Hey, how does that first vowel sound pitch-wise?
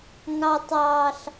high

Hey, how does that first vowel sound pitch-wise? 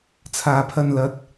low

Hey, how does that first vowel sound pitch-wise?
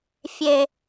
low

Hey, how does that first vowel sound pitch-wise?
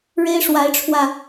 high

